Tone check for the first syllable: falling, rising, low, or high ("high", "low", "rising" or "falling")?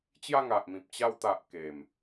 falling